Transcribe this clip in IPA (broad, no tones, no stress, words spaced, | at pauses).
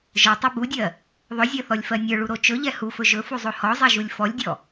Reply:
ʒə˞tˤo budʲɜ | ðˤɵzʲɜθɔlʲfɜ nʲə˞ɭuɾo t͡ʃɵʎɛ hufɵ ʒɵfuzˤo hɔzˤɛʒulʲ fɔlʲdʲɔ